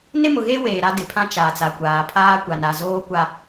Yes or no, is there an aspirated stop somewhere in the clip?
yes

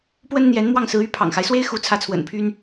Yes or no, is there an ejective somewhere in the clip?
no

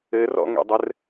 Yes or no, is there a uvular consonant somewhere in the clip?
no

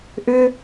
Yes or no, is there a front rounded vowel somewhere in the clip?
yes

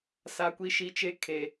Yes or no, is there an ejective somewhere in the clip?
no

